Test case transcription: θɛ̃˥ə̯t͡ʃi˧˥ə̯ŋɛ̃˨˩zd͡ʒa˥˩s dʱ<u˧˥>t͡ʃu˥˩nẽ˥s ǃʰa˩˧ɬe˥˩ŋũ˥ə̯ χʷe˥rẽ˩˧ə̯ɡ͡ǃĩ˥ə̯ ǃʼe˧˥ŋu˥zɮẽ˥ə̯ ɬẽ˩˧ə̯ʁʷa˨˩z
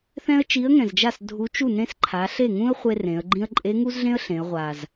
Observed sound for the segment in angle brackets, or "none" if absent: u˧˥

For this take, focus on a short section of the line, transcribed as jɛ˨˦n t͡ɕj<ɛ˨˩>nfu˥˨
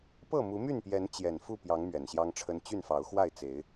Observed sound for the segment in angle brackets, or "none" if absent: ɛ˨˩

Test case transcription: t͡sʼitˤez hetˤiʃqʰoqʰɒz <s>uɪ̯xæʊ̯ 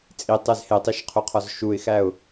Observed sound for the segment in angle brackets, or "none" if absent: ʃ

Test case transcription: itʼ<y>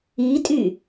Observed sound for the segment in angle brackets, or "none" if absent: y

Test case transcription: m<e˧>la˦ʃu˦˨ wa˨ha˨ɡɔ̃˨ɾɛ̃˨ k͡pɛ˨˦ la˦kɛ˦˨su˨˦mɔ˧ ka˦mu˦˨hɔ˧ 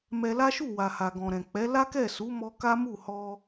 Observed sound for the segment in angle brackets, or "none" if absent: ɛ˧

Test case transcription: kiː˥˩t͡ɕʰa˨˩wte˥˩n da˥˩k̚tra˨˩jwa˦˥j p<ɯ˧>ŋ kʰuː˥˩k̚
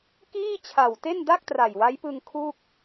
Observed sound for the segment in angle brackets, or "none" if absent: ɯ˧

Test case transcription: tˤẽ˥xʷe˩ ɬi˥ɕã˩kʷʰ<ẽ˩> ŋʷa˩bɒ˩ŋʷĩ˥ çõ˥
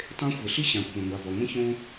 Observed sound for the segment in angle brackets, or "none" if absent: ɛ̃˩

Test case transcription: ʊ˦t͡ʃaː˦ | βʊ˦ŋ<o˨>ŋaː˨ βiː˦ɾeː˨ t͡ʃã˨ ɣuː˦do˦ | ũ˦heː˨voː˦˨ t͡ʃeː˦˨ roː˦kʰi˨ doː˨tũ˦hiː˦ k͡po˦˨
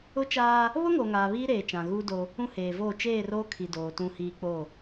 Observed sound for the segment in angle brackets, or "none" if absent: o˨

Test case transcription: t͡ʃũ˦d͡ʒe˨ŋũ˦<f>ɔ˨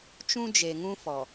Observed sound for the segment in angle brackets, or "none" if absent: f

